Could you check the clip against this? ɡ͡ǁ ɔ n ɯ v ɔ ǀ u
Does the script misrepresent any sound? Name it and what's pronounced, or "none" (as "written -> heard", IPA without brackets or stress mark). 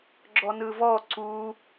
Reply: none